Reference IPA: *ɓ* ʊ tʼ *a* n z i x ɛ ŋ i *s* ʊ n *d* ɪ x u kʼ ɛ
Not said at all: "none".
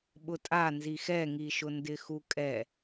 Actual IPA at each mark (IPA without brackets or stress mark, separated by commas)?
ɓ, a, ʃ, d